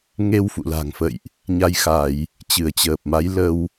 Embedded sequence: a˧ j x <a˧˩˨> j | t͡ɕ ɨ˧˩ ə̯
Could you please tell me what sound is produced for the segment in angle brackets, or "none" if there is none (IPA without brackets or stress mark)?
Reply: a˧˩˨